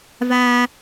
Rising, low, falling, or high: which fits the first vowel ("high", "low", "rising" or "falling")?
high